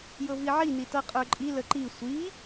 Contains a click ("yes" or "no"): yes